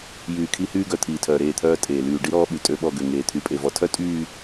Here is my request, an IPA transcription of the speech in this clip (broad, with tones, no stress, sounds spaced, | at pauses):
j yː˨ kʰ i˦ h yː˦ ɡ œ˨ t̪ʰ iː˨ tʰ œː˨ ɾ eː˦˨ t̪ʰ œː˦ tʼ eː˨ l yː˨ ɖ i˦ ɾ ɔː˦ ɓ y˨ tʼ ø˦ ɓ ɔ˦˨ ɡ ø˨ ŋ eː˨ t̪ʰ y˨˦ pʼ e˨ v ɔ˨ tʰ œ˦ tʼ yː˦˨